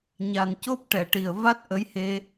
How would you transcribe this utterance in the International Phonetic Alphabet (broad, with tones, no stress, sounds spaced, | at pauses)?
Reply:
ɲ a˨˩ n c o˦˥ p̚ ʈ ɛ˨˩˨ ʈ i˨˩ ə̯ v a˦˥ t̚ ʔ ə˧˥ j h e˧